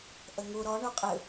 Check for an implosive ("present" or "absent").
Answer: absent